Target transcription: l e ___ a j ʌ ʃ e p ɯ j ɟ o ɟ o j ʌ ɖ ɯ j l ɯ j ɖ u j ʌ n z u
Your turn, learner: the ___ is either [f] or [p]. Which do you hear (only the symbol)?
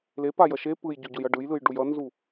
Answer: p